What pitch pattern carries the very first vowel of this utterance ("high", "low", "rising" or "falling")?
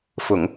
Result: low